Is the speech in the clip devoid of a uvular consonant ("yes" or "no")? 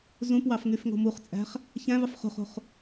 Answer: no